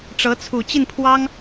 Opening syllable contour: rising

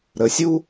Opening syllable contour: rising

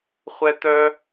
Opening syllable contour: high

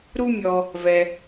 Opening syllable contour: high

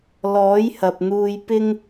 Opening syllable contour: rising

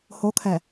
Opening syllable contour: rising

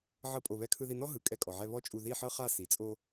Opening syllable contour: high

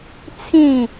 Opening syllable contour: falling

